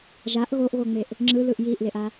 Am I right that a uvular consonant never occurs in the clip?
yes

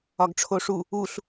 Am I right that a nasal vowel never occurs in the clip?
yes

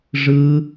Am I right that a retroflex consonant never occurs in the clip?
no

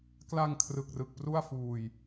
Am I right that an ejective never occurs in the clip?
yes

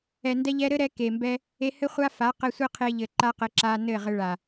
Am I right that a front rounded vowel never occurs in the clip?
yes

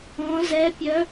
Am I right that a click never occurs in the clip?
yes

